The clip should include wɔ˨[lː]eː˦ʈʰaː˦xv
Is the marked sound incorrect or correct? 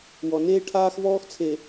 incorrect